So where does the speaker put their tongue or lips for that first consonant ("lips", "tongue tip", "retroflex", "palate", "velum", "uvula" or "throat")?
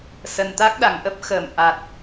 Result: tongue tip